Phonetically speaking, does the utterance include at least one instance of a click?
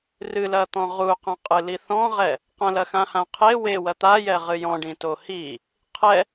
no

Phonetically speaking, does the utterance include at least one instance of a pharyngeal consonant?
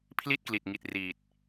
no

